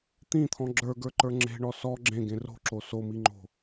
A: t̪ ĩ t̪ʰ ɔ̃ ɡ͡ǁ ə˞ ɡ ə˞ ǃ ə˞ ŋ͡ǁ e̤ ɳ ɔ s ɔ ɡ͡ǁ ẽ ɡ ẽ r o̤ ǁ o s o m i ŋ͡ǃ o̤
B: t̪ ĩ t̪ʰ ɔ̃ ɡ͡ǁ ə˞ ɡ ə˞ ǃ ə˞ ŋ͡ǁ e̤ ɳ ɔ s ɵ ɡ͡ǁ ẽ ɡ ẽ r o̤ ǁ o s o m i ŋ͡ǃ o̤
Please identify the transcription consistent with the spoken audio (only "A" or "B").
A